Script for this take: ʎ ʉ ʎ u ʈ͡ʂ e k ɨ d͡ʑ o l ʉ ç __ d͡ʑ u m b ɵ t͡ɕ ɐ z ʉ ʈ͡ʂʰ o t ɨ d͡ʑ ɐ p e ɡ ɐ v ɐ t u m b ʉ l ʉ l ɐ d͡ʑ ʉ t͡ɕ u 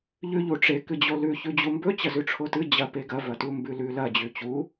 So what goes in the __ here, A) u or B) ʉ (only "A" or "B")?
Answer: B